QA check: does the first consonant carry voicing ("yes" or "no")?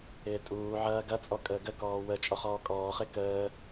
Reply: no